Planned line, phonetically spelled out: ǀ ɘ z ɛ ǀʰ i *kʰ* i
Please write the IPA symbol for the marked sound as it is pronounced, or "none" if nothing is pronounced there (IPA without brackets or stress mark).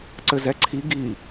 ɡ